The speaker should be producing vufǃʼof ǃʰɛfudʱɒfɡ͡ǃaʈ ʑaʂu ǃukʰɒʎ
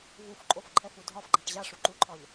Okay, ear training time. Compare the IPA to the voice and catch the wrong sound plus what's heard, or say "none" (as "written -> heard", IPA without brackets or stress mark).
kʰ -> ǃʰ